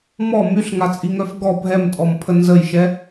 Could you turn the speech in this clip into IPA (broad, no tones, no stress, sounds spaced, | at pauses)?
m ɔ m y ɬ ŋ a t͡sʼ i ŋ œ f ɡ ɔ bʱ ɛ m tʼ ɔ m pʰ ə n z ə j ʃ ɛ